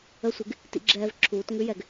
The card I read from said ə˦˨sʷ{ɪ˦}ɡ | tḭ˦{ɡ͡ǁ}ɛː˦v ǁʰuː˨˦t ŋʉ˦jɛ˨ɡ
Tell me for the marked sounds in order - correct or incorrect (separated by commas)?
correct, correct